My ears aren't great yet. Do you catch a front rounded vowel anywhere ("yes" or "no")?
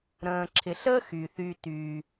yes